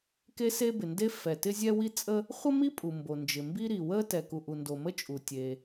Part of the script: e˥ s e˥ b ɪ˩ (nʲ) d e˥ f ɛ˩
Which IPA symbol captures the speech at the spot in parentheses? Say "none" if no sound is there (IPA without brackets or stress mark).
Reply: n